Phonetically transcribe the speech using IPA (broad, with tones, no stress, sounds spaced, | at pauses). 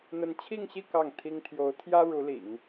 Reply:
n̪ ə˧˥ n t͡ɕʰ i˥˧ ŋ ɕ i˥˧ k ɑ˥˩ ŋ t̪ʰ i˥ ŋ t̪ʰ j o˧˥ ʊ̯ t̪ʰ j ä˥ ɻ u˧˥ l ḭ˨˩˦ ŋ